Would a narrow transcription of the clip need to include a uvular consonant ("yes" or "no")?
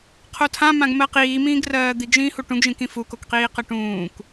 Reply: yes